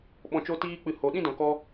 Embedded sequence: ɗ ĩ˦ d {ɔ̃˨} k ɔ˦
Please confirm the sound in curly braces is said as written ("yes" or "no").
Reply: yes